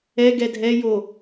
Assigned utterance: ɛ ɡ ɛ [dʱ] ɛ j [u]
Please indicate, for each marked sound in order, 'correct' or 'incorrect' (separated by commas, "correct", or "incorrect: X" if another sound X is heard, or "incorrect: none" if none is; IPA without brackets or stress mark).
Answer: correct, incorrect: o